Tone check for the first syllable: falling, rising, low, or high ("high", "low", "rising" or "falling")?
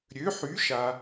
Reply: rising